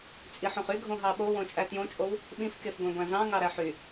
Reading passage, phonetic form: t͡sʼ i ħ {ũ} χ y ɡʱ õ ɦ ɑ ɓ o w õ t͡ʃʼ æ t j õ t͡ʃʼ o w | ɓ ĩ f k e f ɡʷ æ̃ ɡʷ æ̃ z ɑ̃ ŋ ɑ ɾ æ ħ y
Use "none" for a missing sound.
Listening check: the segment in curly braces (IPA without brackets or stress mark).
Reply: õ